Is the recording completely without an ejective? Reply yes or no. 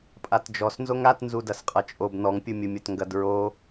no